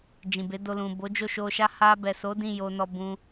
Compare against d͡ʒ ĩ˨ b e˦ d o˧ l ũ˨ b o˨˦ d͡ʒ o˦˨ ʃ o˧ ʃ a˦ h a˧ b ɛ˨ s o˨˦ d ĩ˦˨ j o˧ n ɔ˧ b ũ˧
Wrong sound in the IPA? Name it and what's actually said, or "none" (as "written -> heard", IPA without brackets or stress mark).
e˦ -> e˨˦